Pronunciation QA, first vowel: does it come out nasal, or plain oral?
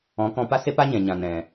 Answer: nasal